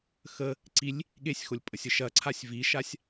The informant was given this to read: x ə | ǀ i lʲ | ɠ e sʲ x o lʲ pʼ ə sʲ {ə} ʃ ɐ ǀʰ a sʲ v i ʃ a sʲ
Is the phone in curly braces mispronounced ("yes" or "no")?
no